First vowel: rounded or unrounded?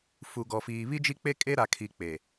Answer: rounded